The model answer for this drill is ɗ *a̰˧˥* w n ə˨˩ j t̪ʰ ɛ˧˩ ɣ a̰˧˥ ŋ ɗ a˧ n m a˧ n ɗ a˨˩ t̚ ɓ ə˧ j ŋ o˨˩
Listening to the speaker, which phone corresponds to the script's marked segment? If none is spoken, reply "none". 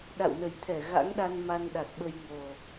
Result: a̰˧˨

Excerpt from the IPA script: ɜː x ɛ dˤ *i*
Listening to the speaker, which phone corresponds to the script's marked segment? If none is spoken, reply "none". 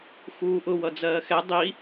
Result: i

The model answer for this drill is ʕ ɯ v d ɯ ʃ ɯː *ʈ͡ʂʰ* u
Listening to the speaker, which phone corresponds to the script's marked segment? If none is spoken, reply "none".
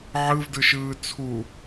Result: t͡sʰ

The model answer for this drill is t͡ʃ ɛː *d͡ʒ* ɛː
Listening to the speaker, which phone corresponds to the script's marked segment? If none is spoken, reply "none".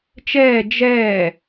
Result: d͡ʒ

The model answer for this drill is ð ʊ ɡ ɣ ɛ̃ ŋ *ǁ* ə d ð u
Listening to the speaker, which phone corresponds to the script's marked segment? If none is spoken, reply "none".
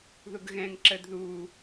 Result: ǁ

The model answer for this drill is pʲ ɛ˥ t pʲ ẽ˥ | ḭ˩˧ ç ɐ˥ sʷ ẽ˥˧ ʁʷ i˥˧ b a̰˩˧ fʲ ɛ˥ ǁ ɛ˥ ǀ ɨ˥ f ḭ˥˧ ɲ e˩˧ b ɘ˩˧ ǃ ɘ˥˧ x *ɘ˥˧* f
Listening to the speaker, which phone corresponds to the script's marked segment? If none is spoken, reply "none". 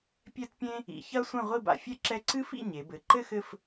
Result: ɘ˥˧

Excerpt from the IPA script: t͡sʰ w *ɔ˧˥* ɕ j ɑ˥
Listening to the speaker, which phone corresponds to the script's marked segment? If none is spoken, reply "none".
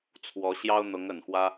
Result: ɔ˧˥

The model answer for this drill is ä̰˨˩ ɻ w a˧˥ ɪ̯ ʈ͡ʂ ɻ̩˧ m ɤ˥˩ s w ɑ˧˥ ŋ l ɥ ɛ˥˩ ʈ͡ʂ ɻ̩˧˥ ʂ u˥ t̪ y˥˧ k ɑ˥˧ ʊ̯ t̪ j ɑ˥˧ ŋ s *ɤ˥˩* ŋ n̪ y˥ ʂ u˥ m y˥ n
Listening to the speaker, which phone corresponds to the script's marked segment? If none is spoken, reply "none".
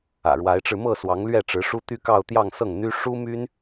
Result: ɤ˥˩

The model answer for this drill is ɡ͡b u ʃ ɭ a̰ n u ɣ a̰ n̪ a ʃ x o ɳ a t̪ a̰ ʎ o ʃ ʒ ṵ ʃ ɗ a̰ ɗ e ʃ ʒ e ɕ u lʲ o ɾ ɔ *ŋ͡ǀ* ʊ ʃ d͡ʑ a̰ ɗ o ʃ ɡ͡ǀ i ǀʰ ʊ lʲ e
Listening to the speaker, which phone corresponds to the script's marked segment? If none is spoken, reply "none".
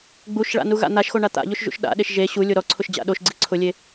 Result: ǀʰ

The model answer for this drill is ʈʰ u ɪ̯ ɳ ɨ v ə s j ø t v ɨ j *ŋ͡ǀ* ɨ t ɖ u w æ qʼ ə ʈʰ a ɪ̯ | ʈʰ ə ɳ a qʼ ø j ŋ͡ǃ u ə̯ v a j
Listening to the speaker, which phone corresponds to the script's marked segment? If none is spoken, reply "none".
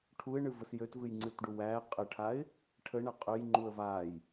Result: ŋ͡ǀ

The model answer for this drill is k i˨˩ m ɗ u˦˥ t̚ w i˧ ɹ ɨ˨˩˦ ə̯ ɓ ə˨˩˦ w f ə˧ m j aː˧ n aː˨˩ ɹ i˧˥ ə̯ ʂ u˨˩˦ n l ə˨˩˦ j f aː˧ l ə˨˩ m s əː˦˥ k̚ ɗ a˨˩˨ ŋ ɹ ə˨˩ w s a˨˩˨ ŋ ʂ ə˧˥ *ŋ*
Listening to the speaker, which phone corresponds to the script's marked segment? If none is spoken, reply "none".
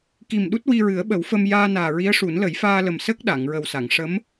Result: m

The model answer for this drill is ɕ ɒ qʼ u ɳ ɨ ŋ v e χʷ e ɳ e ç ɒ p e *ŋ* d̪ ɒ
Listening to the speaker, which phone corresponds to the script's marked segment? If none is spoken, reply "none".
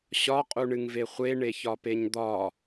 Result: ɲ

